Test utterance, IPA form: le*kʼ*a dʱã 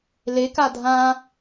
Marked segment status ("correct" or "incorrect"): incorrect